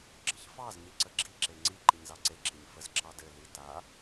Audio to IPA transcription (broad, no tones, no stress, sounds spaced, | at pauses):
ɡ͡ǁ ə ç f ɑ z ɲ i ǀ ə ɡ͡ǁ i ǁ e ŋ͡ǀ i ǃ i ɲ z ɑ ǀ e ǁ i ɲ f ə z ǁ ɑ d ɘ l i t a